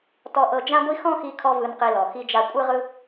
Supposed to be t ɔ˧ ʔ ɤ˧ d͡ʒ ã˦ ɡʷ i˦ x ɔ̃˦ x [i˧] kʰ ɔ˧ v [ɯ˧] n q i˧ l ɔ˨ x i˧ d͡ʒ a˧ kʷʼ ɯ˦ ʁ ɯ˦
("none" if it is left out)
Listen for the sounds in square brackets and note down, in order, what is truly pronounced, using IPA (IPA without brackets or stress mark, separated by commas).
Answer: i˧, ɯ˧